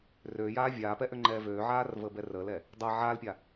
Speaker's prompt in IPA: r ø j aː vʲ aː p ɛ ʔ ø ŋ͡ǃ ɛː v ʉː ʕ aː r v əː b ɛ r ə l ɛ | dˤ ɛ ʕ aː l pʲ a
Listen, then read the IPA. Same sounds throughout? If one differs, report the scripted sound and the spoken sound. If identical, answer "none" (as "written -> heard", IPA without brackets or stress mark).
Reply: ʉː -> øː